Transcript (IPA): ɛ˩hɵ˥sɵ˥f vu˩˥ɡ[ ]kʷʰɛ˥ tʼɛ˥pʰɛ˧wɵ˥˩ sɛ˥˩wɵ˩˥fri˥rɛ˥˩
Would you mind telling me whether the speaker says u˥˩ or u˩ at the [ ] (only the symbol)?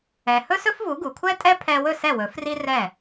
u˩